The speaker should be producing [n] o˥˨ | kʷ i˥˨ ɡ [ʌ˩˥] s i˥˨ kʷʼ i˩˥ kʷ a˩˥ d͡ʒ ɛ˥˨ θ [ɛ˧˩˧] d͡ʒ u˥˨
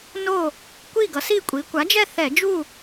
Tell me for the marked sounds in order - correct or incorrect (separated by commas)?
correct, correct, correct